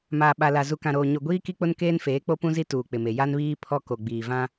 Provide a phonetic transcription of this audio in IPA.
m aː˨ ɓ a˨ l a˨ z u˨ k ã˨ ɾ oː˨ ɲ o˨ ɡʷ iː˦ k i˦ k͡p ʊ˦ n k eː˦ n f eː˨˦ k͡p o˦ p ũ˦ z i˦ t uː˨ k͡p ɪ˨ m e˨ j a˦ n β iː˦ pʰ ɔ˦ k o˨ ɡ͡b iː˨ v ã˦

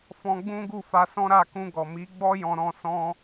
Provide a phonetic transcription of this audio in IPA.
f ɔ̃˧ ɡ͡b ũ˦ ɡ u˦˨ f a˧ s ɔ̃˦ ɾ a˦˨ k ũ˧ ɡ ɔ˨ m i˨˦ ɡ͡b ɔ˦ j ɔ̃˧ ɾ ɔ̃˧ s ɔ̃˧

